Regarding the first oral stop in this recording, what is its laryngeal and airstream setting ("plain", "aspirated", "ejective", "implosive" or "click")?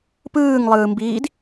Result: plain